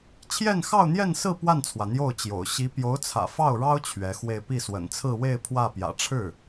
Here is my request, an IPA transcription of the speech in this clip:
t͡ɕʰ j ɛ˥˧ n x ɑ˥˧ ʊ̯ n̪ j ɛ˥˧ n s ɹ̩˥˧ p w a˥˩ n t͡sʰ w ä˩ n̪ j o˥˩ ʊ̯ t͡ɕ j o̰˨˩ ʊ̯ ɕ i˧˥ p j o˧˥ ʊ̯ t͡sʰ ä̰˨˩ f ɑ˥˩ ʊ̯ ɻ ɑ˥ ʊ̯ t͡ɕʰ ɥ ɛ˧˥ x w e˥˧ ɪ̯ p i˥˩ s w ə̰˨˩ n t͡sʰ ɹ̩˥˧ w e˥˧ ɪ̯ pʰ w ä˥˩ p j ä̰˨˩ ʈ͡ʂʰ ɻ̩˥˩

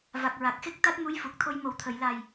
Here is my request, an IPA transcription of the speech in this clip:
v a˨˩ k̚ ɹ a˨˩ k̚ x e˦˥ k̚ t̪ a˦˥ t̚ m u˧˥ j f u˨˩ k̚ t̪ʰ o˧ j m o˨˩ w t̪ʰ ə˨˩˨ j l a˨˩ j

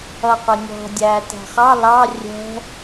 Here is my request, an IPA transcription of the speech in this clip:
ʌ qʷ ɪ nʲ ɔ̤ dʲ æː t æ̤ χ ɑ l ɑ rʲ ɛ̤

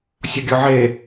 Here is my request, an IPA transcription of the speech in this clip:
sʲ ɔ ɡʲ ɔ ʕ e

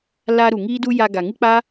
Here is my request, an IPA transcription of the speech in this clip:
l a˧ ɾ u˨ ŋ iː˦ d u˦ j a˧ ɡ a˨ ŋ ɨ˦ k͡p a˦

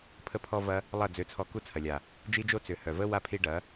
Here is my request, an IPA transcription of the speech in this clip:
pʰ ə˦ pʰ ɔ˦ v ɐ˦ | lˠ ɐ˦˨ d͡z ø˧ t͡sʰ ɔ˧ k u˦ t͡sʰ ɐ˨ lʲ a˨ | d͡ʒ i˦ d͡ʒ o˦ t͡s ʏ˨ h œ˨ v ə˦ w a˦ pʰ i˧ ɖ ɐ˨˦

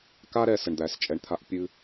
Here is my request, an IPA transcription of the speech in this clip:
k a˦ ɾ ɛ˨ s ə˨ ɳ d̪ æ˨˦ s t͡ʃʼ ɛ˨ ɳ t̪ʰ a˧ ʔ pʲ ɨ˧

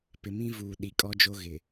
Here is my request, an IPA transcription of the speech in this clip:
p ɪ˨ m ĩ˦ v uː˨ ɗ i˨ kʼ ɔ˦ d͡ʒ o˦ ɣ ɪ˨

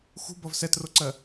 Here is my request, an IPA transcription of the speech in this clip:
x ṳ b ʌ v s ɛ t r o ǀ ɜ

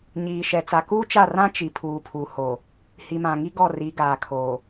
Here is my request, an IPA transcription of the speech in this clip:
ɲ iː˨ ʃ ɛ˨ t͡s a˨ k uː˦ t͡ʃ a˦˨ r ã˦ t͡ʃ i˨ pʰ uː˨ pʰ u˨ h o˨ | h i˨ m ã˨ ŋ i˦ ɡ ɔ˦˨ r i˨˦ ɡ aː˨ kʰ oː˨

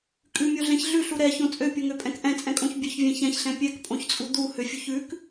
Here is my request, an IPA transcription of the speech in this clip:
kʼ ʉ mʲ o ɮ ɛ̃ ç ɮ ʉ ɬ u ɾ ɛ ç õ t͡sʼ ø pʲ o ŋ ø pʼ ɛ̃ k ʔ ɛ̃ t͡sʼ ɛ̃ kʼ õ ç bʲ ø ç vʲ ɛ̃ ç ɛ̃ ç ɬ ɛ̃ pʲ ɛ k pʼ õ ç t͡sʼ u d̪ u h ø fʲ u ç ʉ k

